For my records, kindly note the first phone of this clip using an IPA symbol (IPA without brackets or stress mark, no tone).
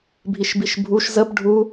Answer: bʱ